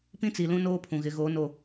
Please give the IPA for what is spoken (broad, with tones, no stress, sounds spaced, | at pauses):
p ĩ˦ t͡s i˨ l ũ˦ n oː˦ pʰ ũ˨ ɣ ɪ˨˦ ɣ oː˨˦ n o˦˨